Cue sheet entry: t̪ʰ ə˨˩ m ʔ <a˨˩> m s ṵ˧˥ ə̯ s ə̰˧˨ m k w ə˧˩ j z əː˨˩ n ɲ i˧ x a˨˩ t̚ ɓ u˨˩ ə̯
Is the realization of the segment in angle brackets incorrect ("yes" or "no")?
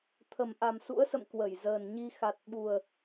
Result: no